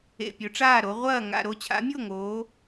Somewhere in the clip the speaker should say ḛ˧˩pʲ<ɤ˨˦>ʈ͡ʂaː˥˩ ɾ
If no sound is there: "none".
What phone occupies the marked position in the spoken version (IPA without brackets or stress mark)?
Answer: ɵ˨˦